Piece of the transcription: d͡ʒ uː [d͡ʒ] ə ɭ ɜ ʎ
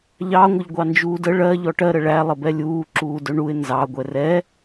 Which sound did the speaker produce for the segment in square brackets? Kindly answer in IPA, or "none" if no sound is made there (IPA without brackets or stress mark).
d